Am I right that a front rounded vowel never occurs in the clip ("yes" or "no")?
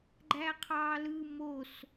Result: yes